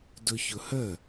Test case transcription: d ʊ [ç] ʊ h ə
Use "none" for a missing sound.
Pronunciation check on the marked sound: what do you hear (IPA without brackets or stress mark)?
ç